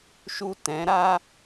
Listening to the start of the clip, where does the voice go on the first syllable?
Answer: low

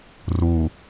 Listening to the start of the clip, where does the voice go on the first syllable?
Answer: low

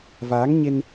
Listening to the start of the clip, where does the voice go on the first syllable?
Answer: rising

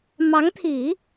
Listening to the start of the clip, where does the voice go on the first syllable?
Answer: rising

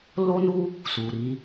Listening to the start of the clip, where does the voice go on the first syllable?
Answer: high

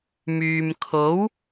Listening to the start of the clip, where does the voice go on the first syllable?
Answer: low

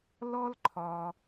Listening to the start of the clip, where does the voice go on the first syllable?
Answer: high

